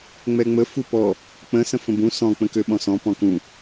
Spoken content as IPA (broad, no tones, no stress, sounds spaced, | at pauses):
ŋ͡m ɛ ŋ͡m ə f u p ɔ | k͡p ə̃ s ə̃ f ə̃ b ũ s ɔ̃ k͡p ə̃ k ø ɓ ɔ̃ s ɔ̃ p ɔ̃ k ũ